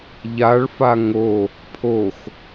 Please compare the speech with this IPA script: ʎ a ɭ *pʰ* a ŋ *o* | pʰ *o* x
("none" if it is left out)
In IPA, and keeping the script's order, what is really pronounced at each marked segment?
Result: f, o, o

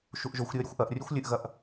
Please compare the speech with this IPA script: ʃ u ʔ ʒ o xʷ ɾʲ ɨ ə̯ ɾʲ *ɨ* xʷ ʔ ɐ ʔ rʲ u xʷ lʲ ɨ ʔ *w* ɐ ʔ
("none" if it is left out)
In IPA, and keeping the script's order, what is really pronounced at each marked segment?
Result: ɨ, ɣ

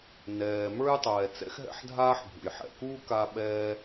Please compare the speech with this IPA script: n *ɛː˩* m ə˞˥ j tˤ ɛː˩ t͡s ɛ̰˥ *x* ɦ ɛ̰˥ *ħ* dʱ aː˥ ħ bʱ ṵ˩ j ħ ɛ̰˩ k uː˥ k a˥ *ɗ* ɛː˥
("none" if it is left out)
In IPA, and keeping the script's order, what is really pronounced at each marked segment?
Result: ɛː˩, x, ħ, ɓ

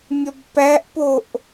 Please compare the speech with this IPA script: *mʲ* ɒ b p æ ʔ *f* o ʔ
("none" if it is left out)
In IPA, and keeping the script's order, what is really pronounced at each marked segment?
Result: mʲ, p

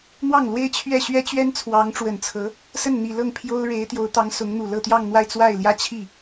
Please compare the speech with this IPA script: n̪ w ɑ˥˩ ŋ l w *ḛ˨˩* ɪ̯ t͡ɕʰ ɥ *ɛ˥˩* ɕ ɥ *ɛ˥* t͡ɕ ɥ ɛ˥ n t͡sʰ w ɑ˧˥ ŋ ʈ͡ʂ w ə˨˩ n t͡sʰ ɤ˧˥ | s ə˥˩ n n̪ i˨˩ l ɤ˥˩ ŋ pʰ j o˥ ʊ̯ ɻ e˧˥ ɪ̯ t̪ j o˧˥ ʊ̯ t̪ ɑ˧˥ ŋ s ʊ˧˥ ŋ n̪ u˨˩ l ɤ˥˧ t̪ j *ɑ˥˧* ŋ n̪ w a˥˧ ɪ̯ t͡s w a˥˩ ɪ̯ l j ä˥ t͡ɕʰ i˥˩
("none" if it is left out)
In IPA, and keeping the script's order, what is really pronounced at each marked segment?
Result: e˥, ɛ˥˩, ɛ˥, ɑ˥˧

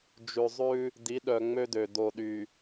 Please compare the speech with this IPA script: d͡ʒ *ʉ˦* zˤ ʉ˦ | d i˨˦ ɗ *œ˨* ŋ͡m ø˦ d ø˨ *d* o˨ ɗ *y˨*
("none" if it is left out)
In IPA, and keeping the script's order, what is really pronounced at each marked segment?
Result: ʉ˨, œ˨, d, y˨

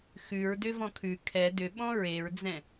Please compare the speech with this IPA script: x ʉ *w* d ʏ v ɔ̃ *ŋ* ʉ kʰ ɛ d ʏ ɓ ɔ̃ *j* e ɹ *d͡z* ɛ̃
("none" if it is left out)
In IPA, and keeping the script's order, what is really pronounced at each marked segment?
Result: ɹ, kʰ, ɹ, d͡z

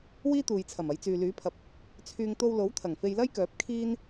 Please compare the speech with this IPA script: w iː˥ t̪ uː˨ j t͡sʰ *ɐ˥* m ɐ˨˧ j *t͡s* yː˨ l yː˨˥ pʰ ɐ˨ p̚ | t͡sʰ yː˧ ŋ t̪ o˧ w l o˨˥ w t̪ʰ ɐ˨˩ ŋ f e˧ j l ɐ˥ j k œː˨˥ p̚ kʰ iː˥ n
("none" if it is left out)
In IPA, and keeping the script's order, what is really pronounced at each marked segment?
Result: ɐ˨˩, t͡s

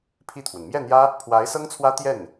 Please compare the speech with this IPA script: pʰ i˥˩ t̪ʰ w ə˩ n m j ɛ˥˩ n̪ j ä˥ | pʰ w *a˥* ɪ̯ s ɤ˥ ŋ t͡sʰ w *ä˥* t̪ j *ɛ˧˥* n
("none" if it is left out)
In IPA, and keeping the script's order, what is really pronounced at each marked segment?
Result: a˧˥, ä˥, ɛ˥˩

